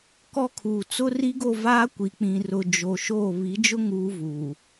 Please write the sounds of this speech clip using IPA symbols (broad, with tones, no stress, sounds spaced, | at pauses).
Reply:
k ɔ˦ kʰ uː˨ t͡s ʊ˦ r i˦ ɡ o˦˨ v aː˦ kʷ i˨ k͡p ĩ˨ r ʊ˨ d͡ʒ o˨ ʃ oː˦˨ β i˨˦ d͡ʒ ʊ˦ ŋ uː˦ v uː˨